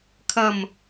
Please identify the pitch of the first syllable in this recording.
low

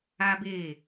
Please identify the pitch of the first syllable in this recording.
high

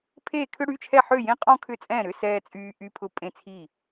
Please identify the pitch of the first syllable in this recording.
falling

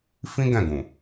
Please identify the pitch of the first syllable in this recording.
high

